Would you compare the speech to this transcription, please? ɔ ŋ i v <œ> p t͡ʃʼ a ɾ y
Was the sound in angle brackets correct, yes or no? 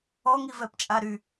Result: no